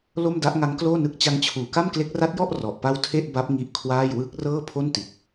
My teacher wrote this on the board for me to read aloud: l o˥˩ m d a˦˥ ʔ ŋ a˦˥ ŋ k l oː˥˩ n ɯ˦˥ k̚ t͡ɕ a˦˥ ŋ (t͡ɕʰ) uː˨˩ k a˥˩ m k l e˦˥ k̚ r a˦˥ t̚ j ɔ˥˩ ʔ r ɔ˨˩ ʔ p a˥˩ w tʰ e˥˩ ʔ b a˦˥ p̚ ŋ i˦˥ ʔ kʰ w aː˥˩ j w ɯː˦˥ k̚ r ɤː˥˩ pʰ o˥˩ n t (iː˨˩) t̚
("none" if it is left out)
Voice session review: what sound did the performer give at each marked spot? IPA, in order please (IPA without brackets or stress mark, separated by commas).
t͡ɕʰ, i˨˩